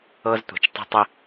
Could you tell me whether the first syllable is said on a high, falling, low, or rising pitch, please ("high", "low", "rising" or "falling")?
high